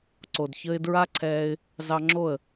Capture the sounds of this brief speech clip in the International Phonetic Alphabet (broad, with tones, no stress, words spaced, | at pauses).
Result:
ǀo˨dçə˧ɪ̯dɹa˦ǀʰɛː˧ɪ̯ | zɑ˧ŋ͡ǁo˦˨ə̯